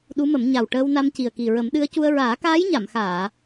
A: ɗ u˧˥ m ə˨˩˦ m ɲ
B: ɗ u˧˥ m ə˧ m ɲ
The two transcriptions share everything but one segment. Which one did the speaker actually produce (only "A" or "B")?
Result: A